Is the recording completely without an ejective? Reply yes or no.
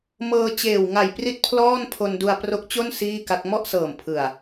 yes